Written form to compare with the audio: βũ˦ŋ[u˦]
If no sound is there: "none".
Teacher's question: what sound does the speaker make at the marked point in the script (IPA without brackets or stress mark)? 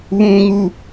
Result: u˦